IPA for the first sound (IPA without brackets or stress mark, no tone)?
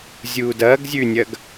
zʲ